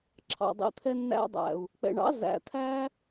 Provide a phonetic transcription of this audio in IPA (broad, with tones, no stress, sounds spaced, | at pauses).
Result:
ǁʰ ɑ̰˨ dˤ ḭ˨ t̪ʰ ɛ˧ nː æ̰˧ dˤ æ̰˨ u̯ | k͡p ɛ̰˨ ɳ ɑ̰˨˦ z æ̰˨ t̪ʰ æ˦